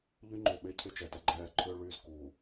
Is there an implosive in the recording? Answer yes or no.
yes